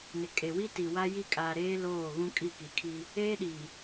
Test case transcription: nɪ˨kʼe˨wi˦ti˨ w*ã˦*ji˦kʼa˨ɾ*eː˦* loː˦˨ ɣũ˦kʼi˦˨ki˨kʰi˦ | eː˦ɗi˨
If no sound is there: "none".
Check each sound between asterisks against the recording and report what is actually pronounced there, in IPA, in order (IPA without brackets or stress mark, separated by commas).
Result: a˦, eː˦